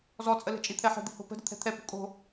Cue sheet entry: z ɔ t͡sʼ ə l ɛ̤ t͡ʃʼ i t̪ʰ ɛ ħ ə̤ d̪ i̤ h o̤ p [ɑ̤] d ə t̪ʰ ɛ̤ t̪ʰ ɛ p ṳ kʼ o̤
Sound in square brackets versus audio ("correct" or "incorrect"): incorrect